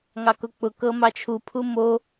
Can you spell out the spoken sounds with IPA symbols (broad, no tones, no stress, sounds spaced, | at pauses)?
ŋ ɑ k ʊ k͡p ʊ k ɤ m ɑ t͡ʃʰ u pʰ u m o